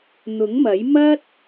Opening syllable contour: rising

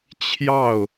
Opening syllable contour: falling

